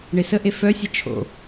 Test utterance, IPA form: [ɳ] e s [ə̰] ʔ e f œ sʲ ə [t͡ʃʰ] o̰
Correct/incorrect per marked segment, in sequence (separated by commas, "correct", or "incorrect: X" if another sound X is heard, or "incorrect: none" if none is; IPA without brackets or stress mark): correct, incorrect: ə, correct